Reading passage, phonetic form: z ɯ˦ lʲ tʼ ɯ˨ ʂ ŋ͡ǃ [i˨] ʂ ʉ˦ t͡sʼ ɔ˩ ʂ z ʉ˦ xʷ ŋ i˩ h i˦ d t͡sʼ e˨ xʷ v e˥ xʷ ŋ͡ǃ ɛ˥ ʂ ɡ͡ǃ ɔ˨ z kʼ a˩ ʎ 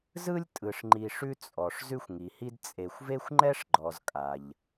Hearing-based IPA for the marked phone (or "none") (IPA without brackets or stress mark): i˨